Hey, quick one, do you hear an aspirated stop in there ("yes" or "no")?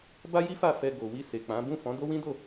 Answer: no